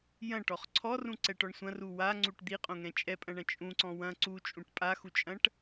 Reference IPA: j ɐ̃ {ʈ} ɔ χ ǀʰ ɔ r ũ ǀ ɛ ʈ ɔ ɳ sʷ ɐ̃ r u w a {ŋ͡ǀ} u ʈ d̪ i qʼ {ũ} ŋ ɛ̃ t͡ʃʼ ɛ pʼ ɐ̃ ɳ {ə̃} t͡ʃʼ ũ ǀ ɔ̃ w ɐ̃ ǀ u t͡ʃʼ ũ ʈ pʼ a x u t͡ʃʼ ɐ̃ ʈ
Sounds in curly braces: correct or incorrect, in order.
correct, correct, incorrect: õ, incorrect: ɐ̃

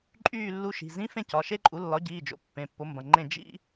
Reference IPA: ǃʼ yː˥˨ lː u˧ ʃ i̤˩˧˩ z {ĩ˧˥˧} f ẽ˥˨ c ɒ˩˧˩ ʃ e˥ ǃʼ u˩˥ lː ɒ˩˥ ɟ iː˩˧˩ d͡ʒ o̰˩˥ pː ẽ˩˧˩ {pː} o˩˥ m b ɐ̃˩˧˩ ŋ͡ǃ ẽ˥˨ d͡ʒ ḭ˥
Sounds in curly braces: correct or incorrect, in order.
correct, correct

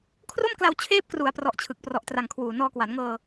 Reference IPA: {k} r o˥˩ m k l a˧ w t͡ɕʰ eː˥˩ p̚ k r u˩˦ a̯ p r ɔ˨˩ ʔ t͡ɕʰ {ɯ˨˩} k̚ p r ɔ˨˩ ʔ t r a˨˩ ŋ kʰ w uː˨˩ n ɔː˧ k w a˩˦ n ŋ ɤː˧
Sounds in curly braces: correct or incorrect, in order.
incorrect: kʰ, correct

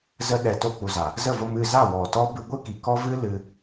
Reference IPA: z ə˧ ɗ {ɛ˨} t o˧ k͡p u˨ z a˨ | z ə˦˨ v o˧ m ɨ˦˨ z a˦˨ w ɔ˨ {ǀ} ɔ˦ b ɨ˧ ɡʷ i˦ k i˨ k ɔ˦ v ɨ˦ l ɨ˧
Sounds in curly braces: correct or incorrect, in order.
correct, incorrect: t

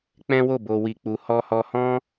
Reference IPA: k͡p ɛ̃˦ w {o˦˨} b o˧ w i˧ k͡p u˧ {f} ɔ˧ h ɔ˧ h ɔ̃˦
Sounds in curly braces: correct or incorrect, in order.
correct, incorrect: h

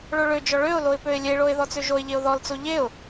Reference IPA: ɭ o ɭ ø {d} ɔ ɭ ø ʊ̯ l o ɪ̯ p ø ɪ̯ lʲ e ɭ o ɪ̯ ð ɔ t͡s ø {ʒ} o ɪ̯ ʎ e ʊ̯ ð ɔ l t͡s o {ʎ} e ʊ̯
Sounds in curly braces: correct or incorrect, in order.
incorrect: d͡ʒ, correct, correct

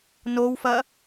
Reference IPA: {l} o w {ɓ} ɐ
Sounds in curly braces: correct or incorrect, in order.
incorrect: n, incorrect: f

